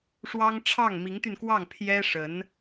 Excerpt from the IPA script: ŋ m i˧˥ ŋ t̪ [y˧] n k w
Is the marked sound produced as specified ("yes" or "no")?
yes